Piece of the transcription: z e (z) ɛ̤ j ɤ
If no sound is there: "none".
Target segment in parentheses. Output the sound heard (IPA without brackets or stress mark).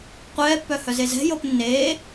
z